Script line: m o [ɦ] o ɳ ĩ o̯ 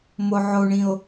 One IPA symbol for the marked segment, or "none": ʕ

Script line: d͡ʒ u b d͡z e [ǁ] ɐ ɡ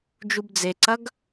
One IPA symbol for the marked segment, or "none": ǀ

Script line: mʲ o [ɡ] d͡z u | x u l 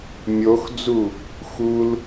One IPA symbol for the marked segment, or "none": x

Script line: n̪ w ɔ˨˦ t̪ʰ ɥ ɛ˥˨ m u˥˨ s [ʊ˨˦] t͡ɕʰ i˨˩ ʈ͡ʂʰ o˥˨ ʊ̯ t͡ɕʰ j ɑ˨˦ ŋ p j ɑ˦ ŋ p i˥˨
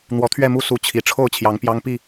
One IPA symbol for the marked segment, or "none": u˨˦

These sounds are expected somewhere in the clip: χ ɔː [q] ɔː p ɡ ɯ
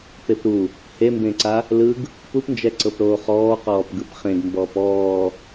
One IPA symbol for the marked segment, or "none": q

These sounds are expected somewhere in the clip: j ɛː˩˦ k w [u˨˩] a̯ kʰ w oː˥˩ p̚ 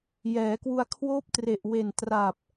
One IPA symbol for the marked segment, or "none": u˧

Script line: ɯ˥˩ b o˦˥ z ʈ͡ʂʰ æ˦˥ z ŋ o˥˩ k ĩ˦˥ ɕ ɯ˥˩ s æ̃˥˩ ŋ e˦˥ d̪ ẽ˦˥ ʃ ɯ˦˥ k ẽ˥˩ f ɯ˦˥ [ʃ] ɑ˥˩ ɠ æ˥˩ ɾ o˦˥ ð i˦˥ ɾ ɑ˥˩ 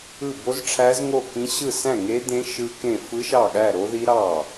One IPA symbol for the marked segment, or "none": ʃ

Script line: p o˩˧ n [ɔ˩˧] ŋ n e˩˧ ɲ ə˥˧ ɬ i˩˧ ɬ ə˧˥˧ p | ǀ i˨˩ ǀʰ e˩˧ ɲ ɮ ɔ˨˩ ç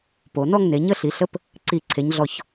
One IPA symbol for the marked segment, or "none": ɔ˥˧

